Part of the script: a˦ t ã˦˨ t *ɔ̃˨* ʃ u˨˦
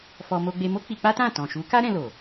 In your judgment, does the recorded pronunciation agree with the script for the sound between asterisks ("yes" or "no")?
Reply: yes